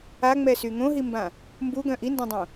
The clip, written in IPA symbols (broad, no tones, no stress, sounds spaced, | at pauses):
a ŋ͡m ɛ s y ŋ õ ɦ i m b ã | m b u ɡ œ̃ ʔ i n d ã dˤ õ